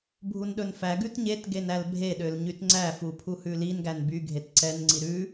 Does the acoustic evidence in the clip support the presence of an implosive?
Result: yes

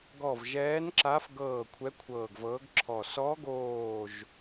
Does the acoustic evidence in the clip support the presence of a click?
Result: yes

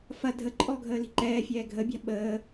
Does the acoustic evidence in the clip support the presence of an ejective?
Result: yes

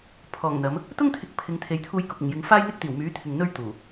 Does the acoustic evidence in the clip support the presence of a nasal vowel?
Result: no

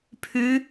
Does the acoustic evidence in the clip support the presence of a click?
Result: no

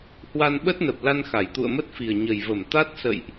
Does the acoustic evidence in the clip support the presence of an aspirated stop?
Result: no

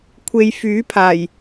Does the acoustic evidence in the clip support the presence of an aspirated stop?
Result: yes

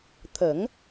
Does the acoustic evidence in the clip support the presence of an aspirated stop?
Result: yes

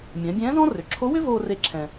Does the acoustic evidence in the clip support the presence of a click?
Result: yes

